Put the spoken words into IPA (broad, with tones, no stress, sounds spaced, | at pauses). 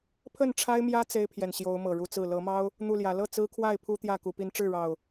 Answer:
pʰ ə˥˨ n ʈ͡ʂʰ a˦ ɪ̯ m j ä˦ t͡s e˦ ɪ̯ pʰ j ɛ˨ n ɕ j o˨˦ ʊ̯ m ɤ˨˩ ɻ u˦ t͡s ɹ̩˥˨ l ɤ˨˦ m ɑ˦ ʊ̯ | n̪ u˥˨ l j ä˨˦ l ɤ˥˨ t͡s ɹ̩˦ kʰ w a˥˨ ɪ̯ pʰ u˦ t̪ j ä˥˨ k u˨˦ p i˦ n ʈ͡ʂ ɻ̩˥˨ ɻ ɑ˨˩ ʊ̯